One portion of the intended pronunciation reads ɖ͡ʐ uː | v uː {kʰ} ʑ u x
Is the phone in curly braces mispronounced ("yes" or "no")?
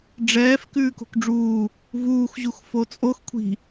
yes